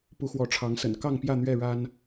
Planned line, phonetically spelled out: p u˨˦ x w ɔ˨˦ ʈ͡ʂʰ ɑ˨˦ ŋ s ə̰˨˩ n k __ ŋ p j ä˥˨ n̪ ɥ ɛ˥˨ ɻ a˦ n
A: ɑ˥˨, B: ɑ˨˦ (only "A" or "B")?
A